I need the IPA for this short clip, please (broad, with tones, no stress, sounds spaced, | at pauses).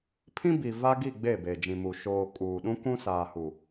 pʰ ĩ˦ b i˨ v a˦ ɡ i˦˨ ɡ͡b e˦˨ b e˨ d͡ʒ ĩ˨ m u˨ ʃ oː˨ kʼ uː˨ ɗ ũ˦ k ũ˦ s aː˨ h u˨